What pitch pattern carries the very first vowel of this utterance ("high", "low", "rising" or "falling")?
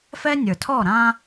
high